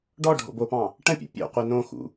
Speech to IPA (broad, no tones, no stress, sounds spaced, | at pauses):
ɖ ɔ ɖʱ o̰ b o p ɑ̃ | ʈ ə̃ pʲ o̰ pʲ o̰ qʷ e n õ x ṵ